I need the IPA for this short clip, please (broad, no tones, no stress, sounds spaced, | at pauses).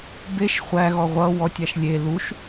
b e ʃ χʷ æ ɣ ɔ ʁʷ ʌ w ɔ tʲ a ʃ lʲ e l u ʃ